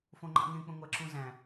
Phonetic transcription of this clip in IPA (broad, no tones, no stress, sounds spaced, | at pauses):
f õ ŋ͡ǃ ɑ̰ ŋ ẽ k͡p ə̃ ŋʷ æ ǁ ũ z æ̃